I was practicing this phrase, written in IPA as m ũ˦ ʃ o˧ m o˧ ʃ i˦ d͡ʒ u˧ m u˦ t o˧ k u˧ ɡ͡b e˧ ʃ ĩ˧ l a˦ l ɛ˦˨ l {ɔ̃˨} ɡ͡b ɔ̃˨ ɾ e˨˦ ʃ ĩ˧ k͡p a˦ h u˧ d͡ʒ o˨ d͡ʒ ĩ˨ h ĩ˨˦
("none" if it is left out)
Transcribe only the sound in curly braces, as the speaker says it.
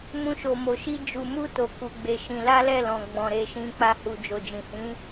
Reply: ɔ̃˨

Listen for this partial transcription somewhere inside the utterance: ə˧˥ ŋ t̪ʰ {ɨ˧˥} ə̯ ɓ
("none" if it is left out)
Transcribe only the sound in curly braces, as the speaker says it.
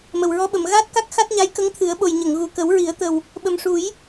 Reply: ɨ˨˩˦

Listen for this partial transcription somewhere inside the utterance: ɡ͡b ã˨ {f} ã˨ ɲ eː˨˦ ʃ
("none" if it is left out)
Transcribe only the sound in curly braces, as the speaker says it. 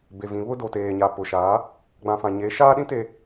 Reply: f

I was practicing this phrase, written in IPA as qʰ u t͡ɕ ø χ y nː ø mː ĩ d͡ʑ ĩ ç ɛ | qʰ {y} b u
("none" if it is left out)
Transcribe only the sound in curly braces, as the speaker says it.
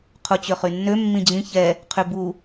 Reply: y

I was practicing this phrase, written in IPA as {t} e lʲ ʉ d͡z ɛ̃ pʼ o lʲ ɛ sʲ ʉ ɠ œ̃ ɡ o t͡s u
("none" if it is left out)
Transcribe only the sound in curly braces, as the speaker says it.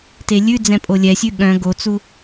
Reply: t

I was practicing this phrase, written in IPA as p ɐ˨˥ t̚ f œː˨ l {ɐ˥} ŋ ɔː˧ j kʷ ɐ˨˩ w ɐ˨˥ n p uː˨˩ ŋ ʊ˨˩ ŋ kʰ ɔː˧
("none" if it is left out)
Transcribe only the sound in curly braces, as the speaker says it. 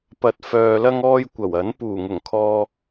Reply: ɐ˧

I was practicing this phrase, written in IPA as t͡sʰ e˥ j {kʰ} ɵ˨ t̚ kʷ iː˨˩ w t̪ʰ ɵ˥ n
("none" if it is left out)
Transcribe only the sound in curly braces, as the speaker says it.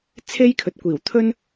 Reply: kʰ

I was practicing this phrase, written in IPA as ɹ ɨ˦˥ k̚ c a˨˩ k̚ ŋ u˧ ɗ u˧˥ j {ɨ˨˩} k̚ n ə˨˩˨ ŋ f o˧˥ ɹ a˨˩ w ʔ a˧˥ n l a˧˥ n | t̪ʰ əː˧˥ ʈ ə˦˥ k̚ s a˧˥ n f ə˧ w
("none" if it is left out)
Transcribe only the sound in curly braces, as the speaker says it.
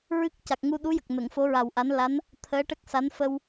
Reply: ə˨˩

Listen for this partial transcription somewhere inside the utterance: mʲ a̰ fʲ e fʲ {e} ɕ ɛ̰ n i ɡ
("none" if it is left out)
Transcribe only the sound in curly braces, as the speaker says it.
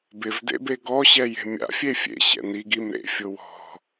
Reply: ḛ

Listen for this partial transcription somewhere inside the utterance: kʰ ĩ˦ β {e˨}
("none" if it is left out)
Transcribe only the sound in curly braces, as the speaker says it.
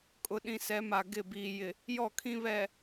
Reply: ɛ˨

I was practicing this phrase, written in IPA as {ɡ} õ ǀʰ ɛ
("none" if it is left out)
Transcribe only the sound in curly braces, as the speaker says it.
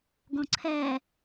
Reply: ɡ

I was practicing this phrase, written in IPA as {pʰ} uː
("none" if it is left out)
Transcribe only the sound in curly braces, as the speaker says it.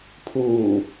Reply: pʰ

